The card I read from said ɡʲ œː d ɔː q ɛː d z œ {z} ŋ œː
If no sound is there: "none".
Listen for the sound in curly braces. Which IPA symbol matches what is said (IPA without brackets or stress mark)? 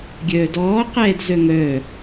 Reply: none